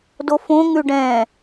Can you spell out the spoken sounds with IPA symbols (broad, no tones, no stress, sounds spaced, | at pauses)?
d o f õ ŋ ʉ ɖ ɛ̃